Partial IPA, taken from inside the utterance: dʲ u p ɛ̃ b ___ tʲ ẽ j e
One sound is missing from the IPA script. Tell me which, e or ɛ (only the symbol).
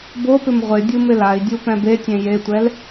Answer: e